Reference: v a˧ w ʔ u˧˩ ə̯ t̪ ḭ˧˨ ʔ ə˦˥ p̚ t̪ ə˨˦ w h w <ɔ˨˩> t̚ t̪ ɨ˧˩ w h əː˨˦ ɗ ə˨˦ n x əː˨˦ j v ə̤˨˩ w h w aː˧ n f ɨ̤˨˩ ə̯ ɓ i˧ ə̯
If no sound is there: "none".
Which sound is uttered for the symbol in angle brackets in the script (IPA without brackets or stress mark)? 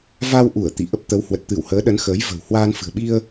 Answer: ə˨˩